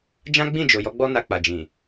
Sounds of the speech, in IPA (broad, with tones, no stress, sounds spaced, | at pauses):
d͡ʒ ã˦ ɡ͡b ĩ˦˨ d͡ʒ o˨ j ɔ˧ ɡ͡b ɔ˧ n a˨ k͡p a˨ d͡ʒ ĩ˨